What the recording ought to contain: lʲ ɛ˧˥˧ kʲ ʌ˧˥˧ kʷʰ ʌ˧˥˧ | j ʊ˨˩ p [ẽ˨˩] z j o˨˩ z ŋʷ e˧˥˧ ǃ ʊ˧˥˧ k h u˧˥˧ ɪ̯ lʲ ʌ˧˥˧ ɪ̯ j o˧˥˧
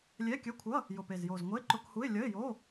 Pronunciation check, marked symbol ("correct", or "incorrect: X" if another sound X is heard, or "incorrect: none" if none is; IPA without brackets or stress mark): incorrect: e˨˩